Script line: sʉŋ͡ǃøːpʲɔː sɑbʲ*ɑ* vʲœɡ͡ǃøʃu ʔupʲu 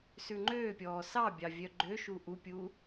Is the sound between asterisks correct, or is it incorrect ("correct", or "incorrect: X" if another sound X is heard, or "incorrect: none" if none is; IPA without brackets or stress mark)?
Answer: correct